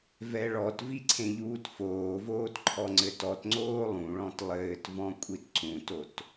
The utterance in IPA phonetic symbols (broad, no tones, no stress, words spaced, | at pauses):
vɛɭɔtvi ǀʰẽʎuːtfoːvoːt ǃʰɔŋ͡ǀɘtɔtŋ͡ǀoː lˠũɭɔ̃t lˠɘːtvɔ̃ kʷʼitǀũtot